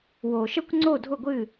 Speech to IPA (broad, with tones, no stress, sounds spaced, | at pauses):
w o˨ ʃ ə˦ kʷ ŋ͡ǀ o˦˨ dʱ ʊ˦˨ ɡʷ ɨ˦˨